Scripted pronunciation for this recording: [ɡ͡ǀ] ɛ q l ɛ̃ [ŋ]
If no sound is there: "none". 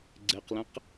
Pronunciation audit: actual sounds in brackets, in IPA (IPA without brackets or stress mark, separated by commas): ɡ͡ǀ, q